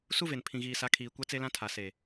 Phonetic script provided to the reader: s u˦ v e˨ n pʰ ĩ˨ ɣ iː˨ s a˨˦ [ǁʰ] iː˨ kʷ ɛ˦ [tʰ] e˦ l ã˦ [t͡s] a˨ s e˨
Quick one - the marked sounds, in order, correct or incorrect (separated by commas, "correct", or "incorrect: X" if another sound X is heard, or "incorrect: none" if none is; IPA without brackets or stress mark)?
incorrect: kʰ, incorrect: t͡s, incorrect: tʰ